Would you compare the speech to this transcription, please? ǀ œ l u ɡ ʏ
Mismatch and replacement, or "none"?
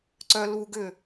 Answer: none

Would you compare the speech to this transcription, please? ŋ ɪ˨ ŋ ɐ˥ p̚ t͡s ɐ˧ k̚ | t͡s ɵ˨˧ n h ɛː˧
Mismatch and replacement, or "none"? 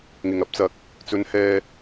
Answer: none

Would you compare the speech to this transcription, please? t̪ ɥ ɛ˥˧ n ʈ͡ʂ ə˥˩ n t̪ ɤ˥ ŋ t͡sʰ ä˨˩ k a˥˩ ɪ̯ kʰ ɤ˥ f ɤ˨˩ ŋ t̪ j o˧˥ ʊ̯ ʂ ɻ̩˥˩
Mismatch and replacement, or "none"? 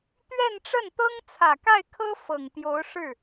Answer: none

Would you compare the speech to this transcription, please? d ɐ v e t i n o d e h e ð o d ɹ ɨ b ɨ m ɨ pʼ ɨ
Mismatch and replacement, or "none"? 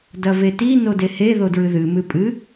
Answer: b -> ð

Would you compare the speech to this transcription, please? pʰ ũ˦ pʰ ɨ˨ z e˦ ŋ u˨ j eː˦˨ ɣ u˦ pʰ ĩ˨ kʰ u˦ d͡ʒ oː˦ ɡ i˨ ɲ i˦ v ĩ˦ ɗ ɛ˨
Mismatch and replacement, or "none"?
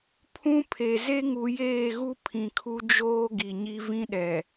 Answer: ɨ˨ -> e˨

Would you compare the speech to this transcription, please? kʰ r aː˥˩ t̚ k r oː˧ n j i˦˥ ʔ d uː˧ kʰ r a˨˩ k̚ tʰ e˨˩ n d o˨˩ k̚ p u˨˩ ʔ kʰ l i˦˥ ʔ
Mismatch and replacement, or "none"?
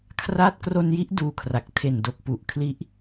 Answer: oː˧ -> o˧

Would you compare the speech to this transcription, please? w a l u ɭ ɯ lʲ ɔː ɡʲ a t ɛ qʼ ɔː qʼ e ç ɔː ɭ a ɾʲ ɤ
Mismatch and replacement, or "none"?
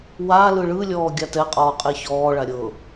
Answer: u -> ɯ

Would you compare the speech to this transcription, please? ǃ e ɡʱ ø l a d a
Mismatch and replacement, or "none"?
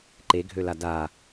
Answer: none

